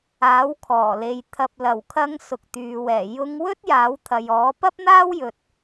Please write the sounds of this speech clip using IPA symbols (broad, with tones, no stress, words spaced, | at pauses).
aː˨˥wkʰɔː˨˩le˨j t̪ʰɐ˨p̚lɐ˨˩wkʰɐ˧ŋ sʊ˨k̚t̪yː˨wɛː˨˩ jʊ˧ŋwɵ˥t̚ jaː˨˥wt̪ʰɐ˨jɔː˨˥ pɐ˥p̚n̪aː˥wjɵ˨t̚